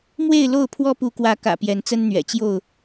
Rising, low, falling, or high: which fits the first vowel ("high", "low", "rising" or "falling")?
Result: falling